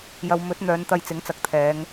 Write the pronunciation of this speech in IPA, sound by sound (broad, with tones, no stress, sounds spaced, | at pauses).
j ɐ˨˧ w m ɵ˨˥ t̚ n̪ œː˨˧ n t̪ ɐ˧ j t͡s ɪ˨˥ ŋ t͡s ɐ˨ k̚ t̪ʰ ɛː˨˧ ŋ